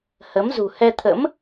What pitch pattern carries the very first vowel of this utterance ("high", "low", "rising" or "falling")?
rising